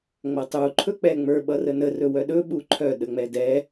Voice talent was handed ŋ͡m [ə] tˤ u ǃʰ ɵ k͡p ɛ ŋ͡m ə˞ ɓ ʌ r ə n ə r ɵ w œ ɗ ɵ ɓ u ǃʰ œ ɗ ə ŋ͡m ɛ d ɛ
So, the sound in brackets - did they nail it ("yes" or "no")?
no